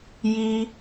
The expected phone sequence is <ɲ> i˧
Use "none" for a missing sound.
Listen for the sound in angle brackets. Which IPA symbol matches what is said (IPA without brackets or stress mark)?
j